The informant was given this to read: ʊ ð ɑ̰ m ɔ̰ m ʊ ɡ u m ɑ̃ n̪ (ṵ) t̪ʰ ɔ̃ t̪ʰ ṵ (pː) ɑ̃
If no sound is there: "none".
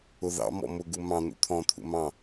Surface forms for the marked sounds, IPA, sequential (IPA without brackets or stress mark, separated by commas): ṵ, m